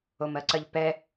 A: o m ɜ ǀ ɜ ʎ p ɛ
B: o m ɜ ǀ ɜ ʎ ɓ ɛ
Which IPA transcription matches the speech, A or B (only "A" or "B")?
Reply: A